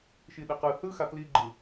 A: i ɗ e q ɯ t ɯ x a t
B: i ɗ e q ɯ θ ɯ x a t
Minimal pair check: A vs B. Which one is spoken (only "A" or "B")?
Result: B